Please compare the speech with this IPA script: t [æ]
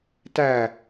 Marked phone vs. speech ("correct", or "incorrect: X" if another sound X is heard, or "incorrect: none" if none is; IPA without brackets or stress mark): correct